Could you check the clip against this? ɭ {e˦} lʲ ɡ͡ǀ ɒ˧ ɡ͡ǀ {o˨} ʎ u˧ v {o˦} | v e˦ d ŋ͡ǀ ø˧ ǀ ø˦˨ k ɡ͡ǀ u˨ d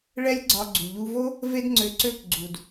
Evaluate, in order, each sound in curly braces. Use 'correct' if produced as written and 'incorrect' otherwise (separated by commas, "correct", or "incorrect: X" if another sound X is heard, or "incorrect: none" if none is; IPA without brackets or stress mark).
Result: incorrect: ɛ˦, incorrect: u˨, correct